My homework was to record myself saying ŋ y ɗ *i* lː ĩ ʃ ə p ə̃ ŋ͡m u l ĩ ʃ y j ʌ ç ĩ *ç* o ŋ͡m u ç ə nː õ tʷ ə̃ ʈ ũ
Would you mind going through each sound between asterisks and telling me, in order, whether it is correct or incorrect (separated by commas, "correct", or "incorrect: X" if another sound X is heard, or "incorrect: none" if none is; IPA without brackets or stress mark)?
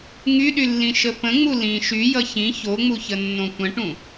incorrect: y, correct